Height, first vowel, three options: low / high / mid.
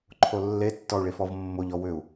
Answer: mid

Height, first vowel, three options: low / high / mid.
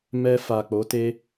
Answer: mid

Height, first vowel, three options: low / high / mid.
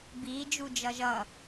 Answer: high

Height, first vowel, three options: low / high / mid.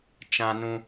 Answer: low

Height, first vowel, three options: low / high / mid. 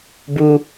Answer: high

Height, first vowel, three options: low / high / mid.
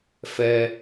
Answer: mid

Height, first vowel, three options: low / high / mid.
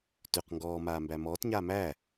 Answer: high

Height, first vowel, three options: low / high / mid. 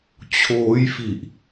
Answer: mid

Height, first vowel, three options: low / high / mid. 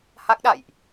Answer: low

